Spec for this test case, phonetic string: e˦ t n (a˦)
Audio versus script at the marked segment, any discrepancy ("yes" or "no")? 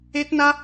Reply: no